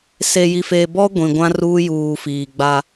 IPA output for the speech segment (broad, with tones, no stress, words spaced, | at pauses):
se˨ji˨feː˨ bɔ˦ ɡʷĩ˨ɡʷã˦ ruː˦juː˨fiː˨ɡ͡ba˦